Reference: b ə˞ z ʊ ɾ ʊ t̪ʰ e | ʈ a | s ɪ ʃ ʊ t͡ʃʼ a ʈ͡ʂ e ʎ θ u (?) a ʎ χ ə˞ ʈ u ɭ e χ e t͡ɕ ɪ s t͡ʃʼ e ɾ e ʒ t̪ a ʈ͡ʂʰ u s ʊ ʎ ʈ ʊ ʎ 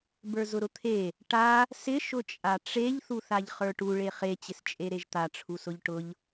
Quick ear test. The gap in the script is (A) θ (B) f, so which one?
A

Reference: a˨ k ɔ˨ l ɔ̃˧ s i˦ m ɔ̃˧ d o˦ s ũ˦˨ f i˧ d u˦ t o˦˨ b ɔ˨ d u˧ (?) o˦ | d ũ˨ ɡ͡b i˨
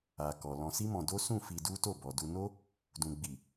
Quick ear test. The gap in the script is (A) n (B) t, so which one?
A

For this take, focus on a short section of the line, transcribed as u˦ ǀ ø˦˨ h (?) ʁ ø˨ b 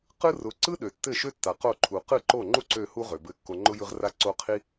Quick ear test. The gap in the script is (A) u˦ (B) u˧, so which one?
A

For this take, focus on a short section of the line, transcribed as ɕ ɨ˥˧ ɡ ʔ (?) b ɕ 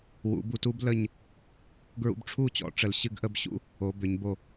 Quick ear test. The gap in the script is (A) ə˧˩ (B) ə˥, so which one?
B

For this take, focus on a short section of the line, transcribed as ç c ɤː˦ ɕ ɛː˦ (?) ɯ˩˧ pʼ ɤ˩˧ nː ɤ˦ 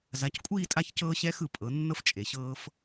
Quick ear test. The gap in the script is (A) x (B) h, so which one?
A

